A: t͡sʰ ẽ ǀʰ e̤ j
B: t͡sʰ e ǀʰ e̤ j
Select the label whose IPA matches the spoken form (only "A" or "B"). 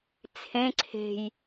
A